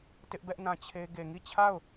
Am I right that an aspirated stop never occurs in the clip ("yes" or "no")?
no